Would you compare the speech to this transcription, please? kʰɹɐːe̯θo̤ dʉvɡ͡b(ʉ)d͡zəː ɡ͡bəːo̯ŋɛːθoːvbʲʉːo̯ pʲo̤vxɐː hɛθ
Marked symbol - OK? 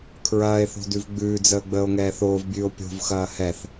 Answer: no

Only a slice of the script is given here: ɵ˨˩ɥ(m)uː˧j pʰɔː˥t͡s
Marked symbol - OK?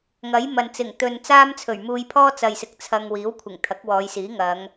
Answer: yes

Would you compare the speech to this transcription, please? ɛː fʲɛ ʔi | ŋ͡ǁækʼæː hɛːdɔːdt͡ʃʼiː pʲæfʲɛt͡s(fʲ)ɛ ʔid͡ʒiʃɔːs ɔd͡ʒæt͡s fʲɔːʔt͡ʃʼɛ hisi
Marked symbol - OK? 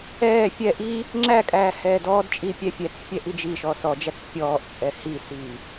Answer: yes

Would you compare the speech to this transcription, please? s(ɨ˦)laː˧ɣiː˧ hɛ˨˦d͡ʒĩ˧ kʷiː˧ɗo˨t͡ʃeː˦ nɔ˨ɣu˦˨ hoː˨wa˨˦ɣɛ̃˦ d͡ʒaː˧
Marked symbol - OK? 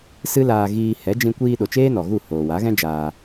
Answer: yes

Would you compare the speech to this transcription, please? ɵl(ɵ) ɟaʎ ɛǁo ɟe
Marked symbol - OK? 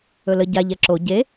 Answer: no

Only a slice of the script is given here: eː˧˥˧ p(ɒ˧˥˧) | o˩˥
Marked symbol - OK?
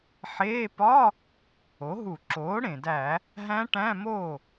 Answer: yes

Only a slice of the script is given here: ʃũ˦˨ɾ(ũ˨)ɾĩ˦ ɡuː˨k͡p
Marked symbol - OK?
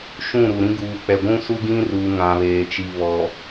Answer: no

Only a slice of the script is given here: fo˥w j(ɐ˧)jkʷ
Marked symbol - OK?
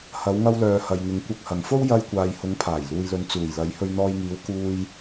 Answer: yes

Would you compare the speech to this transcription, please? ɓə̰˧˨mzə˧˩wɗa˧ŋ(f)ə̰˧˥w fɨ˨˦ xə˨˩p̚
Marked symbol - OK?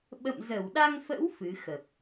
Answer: yes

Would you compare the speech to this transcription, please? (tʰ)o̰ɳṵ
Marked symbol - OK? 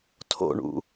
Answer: yes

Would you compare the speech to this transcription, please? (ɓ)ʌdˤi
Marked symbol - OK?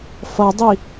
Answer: no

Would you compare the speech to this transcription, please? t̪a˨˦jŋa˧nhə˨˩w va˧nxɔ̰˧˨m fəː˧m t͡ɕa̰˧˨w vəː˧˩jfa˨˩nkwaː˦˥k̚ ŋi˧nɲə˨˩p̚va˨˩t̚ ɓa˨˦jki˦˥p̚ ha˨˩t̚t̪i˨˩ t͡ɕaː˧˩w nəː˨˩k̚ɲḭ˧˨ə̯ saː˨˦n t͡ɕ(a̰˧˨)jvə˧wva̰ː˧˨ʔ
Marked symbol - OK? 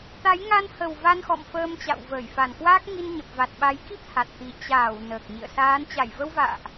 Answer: no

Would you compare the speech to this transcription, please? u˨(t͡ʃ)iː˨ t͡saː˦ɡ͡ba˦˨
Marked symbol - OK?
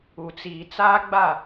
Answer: no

